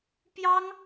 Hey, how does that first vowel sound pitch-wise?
high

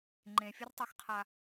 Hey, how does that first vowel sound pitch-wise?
low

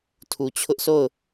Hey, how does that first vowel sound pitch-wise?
low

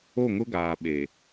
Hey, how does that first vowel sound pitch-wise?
falling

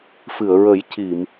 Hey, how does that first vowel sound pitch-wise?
low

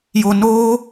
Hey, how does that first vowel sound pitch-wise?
low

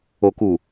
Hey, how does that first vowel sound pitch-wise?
low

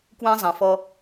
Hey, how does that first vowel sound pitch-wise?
high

